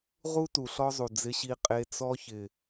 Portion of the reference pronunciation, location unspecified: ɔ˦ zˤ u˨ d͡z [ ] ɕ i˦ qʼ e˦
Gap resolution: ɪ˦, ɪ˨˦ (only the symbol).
ɪ˦